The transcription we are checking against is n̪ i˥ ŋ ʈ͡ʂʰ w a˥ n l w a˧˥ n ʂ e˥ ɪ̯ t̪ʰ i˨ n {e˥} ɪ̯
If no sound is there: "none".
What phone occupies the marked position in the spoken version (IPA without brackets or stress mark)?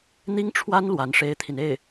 e˥˩